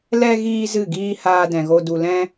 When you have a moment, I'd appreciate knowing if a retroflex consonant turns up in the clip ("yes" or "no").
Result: no